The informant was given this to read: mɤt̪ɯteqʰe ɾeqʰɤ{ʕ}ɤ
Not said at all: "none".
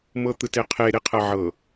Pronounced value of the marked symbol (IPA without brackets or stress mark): ʕ